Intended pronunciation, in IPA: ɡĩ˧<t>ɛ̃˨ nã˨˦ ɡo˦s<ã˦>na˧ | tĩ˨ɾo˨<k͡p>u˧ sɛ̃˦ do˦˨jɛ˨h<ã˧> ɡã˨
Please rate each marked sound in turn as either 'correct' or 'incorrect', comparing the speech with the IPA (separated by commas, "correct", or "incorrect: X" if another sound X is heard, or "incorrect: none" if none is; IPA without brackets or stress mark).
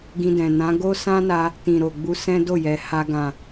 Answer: incorrect: d, correct, incorrect: ɡ͡b, incorrect: a˧